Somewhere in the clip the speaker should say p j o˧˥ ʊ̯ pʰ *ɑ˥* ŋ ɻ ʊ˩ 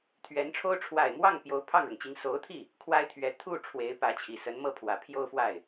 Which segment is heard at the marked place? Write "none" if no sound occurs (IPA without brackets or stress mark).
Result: ɑ˥˩